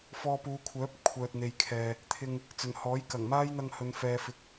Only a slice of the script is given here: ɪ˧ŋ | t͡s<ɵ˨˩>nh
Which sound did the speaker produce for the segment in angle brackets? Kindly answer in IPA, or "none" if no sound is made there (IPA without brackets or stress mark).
ɵ˨˩